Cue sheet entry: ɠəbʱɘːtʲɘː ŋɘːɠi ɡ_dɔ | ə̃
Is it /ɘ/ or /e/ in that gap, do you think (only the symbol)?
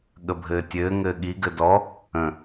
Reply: ɘ